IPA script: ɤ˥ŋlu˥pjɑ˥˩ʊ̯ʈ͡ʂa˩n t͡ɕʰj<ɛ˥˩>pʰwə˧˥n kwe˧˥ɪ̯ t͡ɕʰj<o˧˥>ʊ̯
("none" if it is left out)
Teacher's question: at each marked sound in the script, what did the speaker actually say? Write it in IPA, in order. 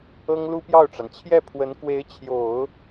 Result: ɛ˥˩, o˨˩˦

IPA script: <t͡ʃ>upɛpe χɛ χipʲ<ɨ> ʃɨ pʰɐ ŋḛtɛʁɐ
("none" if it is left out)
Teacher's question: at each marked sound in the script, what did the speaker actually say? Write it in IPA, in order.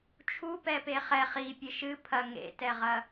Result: t͡ʃʰ, ɨ

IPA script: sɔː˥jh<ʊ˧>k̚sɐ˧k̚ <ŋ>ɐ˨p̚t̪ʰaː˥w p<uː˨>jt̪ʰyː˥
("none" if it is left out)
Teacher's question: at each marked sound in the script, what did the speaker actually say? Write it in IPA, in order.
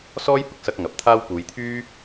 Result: ʊ˧, ŋ, uː˨˧

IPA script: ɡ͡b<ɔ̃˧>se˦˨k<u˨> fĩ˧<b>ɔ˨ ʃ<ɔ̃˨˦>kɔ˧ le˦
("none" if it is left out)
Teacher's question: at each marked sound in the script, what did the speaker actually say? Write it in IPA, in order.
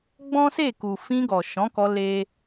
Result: ɔ̃˦, u˨, ɡ, ɔ̃˨˦

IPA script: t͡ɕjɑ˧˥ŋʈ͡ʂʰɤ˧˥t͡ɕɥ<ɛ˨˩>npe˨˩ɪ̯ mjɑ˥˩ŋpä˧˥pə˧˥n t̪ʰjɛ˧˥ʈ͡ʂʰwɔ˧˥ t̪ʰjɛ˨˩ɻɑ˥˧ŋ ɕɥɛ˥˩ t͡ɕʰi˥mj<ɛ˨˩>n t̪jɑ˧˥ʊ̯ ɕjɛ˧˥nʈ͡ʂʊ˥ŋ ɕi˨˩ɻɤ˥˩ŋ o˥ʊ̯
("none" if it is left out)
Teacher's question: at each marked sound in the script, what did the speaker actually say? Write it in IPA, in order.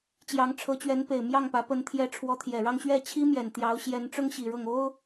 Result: ɛ˧˥, ɛ˨˩

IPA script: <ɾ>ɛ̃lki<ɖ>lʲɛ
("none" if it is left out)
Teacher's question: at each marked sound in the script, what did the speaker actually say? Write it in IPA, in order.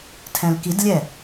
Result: tʰ, d

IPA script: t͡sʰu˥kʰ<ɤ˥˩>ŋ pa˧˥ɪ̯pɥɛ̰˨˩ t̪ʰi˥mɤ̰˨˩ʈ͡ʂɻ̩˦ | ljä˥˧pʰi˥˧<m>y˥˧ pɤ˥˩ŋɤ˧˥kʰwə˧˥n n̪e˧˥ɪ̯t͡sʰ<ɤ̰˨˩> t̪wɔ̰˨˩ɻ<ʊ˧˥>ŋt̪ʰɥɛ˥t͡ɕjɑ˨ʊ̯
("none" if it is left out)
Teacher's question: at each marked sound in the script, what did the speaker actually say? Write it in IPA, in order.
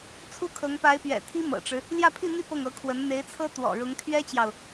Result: ɤ˧˥, n̪, ɤ˥, ʊ˧˥

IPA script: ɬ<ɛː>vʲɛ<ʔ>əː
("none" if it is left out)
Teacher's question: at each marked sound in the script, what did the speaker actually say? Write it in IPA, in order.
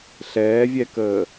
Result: ɛː, k

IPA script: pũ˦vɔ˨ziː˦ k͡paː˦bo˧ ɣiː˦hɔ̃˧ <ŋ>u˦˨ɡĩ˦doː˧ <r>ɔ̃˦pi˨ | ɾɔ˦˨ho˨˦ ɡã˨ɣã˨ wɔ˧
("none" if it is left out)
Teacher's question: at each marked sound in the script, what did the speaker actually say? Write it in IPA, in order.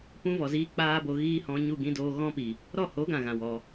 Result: ɲ, ɣ

